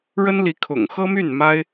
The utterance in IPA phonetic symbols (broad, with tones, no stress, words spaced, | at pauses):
ɻə˥n li˧˥ kʰʊ̰˨˩ŋxɤ˥my˥˩n ma˥ɪ̯